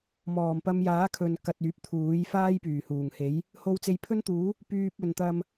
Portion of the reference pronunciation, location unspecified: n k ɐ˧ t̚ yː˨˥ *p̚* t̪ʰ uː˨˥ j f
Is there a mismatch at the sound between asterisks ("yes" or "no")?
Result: no